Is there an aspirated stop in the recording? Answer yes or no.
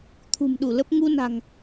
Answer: yes